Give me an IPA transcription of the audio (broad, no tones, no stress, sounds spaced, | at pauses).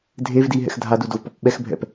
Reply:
dʱ e v d i ɦ ɛ̰ x dʱ a d u d o v p ɔ p ɓ ɛ x bʱ ɛ̰ p